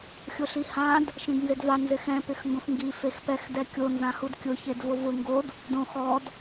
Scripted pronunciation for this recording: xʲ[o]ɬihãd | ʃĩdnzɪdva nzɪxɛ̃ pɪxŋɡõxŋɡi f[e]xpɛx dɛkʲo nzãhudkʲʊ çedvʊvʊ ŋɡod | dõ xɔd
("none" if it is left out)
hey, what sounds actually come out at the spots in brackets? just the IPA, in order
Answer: o, e

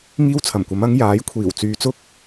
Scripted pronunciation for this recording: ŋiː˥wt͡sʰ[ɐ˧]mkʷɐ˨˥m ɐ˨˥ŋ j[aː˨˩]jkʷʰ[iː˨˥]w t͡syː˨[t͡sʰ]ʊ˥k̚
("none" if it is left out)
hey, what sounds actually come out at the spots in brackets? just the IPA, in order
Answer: ɐ˨˩, aː˨˥, iː˨˩, t͡s

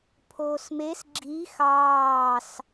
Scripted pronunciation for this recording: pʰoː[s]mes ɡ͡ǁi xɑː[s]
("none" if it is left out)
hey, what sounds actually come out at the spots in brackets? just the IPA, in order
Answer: s, s

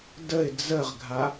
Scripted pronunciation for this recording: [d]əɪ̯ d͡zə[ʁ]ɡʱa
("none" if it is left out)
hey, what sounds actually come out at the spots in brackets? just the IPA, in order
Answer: d, ʁ

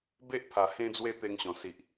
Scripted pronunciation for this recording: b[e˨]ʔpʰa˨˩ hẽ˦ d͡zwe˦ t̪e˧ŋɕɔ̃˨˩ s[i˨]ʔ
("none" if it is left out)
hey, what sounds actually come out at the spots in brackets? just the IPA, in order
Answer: e˦, i˨

